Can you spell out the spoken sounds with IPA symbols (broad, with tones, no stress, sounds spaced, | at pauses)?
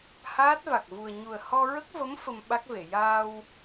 h aː˦˥ t̚ v a˨˩ k̚ v u˨˩ ə̯ ɲ u˨˩ ə̯ h ɔ˧ ɹ ə˦˥ k̚ v ə˧˥ m f ə˧ m ɓ a˦˥ k̚ v e˨˩˨ j aː˧ w